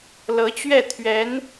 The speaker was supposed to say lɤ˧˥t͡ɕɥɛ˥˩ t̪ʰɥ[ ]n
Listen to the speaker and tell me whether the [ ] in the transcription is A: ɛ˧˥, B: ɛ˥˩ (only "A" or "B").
A